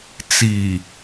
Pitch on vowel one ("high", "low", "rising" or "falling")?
low